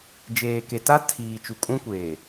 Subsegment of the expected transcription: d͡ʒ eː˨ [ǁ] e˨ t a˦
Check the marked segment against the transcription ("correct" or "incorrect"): incorrect